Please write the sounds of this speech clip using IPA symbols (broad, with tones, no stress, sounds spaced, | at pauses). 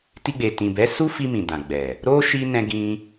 t i˧ ɡ͡b e˨ t ĩ˨ b ɛ˨˦ s u˦ f i˧ m ĩ˨ d ã˨ ɡ͡b ɛ˨ | ɾ o˦ ʃ i˦ n ɛ̃˧ ɡ ĩ˧